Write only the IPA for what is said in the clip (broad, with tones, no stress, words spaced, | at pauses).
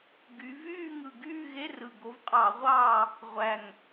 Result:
ɡy˨˦ vyː˦˨ŋɯ˨˩ɡyː˦˨ ɣe˧˥˧rɯ˨˩ ɡo˨˦vqʼɑ˧˩˧ʁʷɑː˦˨ | ʁʷæ˨˩ŋ